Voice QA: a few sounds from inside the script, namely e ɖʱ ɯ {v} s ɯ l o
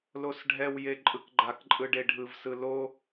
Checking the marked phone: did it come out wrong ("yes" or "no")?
no